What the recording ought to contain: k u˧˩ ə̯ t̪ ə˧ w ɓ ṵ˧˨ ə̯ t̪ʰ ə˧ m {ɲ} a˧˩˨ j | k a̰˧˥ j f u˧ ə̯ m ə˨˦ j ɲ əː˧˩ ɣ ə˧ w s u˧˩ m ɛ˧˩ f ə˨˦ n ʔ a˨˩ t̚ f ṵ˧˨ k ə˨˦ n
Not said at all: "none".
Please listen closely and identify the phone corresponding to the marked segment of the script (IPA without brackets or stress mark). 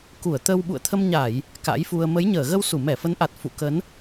ɲ